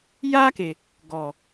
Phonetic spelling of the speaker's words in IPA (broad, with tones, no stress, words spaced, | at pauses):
jaː˦ke˨ | ɡɔ˨